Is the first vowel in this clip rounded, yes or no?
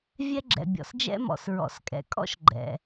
no